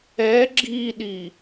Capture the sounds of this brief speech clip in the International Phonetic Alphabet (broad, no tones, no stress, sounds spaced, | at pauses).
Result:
ɛ ɡ͡ǁ i ɗ i